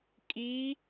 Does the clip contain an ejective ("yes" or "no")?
yes